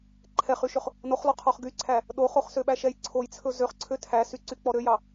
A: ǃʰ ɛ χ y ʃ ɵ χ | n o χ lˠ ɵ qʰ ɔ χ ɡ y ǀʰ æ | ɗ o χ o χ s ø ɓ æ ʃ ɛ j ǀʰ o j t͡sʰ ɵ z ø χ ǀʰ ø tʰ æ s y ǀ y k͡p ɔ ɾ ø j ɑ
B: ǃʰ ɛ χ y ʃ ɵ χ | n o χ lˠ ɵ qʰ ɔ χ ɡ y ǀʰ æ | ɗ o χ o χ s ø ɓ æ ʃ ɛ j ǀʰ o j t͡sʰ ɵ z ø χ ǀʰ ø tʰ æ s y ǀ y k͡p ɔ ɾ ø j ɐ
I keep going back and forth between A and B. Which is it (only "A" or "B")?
A